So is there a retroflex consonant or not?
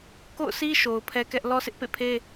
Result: no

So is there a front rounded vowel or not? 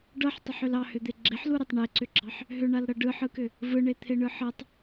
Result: yes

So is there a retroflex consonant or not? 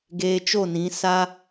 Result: no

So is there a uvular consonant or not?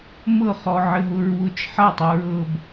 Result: yes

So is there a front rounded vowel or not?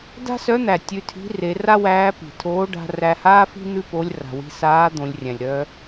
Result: yes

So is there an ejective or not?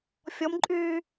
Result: yes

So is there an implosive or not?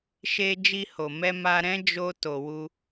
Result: no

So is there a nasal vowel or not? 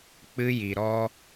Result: no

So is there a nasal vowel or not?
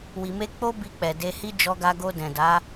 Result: yes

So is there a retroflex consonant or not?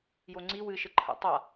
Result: no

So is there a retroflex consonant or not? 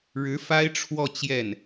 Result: yes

